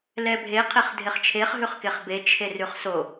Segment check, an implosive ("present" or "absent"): absent